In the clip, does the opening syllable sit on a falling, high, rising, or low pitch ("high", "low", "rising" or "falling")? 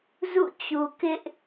falling